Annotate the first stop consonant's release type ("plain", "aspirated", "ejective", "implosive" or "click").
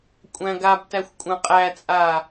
ejective